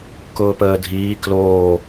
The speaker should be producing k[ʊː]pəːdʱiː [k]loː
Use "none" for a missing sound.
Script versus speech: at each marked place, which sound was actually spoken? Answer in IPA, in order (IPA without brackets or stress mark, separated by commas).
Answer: ʊː, k